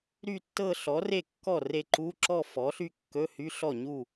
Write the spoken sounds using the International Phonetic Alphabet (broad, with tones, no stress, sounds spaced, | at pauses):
ɾ y˥˧ tː ɤ˥˧ ɬ ɔ˩˥ r e˥˩ kː ɔ˥˩ r e˥˧ ǃ u˧˥˧ ǁ ɔ˥˧ f ɔ˩˥ ɬ y˥˧ kː ɵ˧˥˧ h y˧˥˧ ɬ ɔ˥˩ ɲ u˥˩